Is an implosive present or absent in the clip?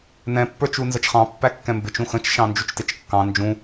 absent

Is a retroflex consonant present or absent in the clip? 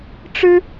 present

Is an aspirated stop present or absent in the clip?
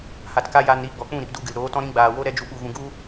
absent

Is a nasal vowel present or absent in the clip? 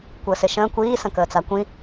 present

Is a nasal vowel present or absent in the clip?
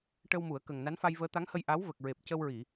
absent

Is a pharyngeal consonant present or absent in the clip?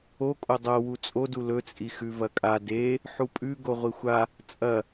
present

